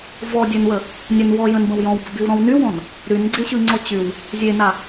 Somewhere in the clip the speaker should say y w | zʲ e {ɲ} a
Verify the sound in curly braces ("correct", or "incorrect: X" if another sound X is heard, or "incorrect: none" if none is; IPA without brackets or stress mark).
incorrect: n